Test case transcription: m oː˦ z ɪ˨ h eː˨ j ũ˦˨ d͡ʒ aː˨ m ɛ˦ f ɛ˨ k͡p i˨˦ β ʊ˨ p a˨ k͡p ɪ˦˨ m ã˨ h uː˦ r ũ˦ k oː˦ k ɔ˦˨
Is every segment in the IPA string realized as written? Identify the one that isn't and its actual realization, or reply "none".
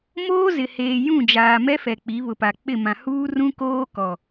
ɔ˦˨ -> ɔ˨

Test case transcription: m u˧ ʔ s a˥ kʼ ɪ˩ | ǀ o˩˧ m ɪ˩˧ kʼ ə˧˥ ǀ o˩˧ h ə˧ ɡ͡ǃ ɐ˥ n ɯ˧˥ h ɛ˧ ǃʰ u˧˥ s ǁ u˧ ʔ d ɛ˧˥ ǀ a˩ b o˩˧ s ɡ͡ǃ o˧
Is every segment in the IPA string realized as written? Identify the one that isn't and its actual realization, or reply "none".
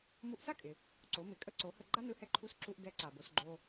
ɐ˥ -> a˥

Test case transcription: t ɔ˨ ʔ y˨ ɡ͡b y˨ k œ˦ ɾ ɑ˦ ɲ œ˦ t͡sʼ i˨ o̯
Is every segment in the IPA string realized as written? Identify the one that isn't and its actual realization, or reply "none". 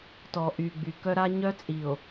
ɑ˦ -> a˦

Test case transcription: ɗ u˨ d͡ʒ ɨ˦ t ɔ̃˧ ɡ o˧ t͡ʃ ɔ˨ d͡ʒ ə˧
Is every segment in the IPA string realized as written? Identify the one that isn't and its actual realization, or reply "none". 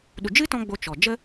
ɡ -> ɡ͡b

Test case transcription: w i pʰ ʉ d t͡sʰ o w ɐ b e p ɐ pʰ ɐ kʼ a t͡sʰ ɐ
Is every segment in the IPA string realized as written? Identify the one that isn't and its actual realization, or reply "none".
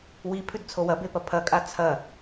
none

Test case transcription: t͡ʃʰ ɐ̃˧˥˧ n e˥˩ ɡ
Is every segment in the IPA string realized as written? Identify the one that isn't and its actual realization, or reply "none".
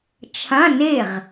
ɡ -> ʁ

